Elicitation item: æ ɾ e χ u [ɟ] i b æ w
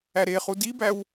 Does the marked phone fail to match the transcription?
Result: yes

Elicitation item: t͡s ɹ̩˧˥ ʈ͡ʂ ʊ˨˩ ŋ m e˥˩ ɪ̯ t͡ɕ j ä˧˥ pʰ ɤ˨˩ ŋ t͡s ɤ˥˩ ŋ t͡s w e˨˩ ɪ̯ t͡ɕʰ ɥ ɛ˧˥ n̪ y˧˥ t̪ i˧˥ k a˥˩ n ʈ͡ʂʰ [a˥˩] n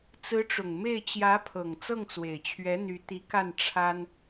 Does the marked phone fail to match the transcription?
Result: yes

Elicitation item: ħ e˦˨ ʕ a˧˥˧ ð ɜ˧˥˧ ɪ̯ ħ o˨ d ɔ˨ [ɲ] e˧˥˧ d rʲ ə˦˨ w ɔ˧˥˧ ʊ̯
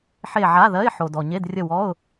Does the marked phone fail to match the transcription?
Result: no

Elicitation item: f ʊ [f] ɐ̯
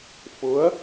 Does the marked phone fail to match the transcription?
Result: yes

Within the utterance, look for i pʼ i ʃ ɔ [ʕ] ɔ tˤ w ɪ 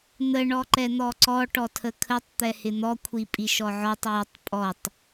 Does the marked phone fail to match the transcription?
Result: no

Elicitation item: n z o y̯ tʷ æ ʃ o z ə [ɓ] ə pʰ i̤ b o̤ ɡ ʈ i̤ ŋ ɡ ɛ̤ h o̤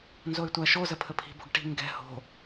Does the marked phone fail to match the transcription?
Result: yes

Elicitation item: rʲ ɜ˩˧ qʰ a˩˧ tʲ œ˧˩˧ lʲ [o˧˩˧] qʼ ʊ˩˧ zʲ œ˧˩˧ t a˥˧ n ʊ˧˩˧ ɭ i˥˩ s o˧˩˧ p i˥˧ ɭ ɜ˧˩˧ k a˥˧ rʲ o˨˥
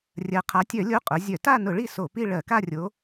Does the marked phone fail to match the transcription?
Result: yes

